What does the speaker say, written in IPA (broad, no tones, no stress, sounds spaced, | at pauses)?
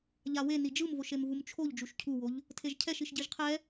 ʎ a w e n i d͡ʒ ɯ m v o ʃ e m v u m t͡ʃʰ o ʎ d͡ʒ u ʃ cʰ u w o ʎ | tʰ e ʒ cʰ ɛ ʃ i ʃ ɟ i ʒ qʰ ɛ